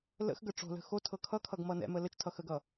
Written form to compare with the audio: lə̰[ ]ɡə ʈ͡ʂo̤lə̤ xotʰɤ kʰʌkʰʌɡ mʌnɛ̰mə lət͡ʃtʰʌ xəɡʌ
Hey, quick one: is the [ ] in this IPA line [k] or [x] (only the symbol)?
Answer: x